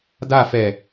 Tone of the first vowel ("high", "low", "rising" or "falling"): falling